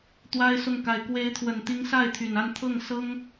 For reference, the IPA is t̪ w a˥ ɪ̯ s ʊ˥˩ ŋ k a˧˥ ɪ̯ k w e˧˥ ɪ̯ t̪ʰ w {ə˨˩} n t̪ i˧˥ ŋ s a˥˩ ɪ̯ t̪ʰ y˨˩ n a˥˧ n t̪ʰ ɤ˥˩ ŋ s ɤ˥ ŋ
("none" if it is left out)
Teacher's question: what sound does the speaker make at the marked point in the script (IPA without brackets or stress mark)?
ə˨˩